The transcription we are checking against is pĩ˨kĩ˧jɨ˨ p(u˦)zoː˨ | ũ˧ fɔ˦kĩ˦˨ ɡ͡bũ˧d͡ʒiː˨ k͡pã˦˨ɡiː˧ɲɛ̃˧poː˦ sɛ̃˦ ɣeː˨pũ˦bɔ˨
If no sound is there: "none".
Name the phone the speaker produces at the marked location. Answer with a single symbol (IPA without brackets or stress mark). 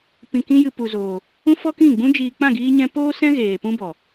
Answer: u˨